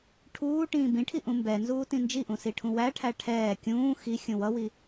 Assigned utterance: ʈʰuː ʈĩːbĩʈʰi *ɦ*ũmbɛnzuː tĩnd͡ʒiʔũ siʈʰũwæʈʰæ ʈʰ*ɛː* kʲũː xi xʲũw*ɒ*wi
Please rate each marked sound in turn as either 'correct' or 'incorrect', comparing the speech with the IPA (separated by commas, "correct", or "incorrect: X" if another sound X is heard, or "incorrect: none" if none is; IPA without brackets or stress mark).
incorrect: ʔ, correct, incorrect: ʌ